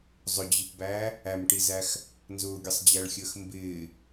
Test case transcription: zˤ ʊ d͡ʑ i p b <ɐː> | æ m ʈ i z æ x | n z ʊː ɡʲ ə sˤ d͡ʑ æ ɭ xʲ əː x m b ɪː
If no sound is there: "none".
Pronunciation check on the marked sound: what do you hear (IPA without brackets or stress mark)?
æː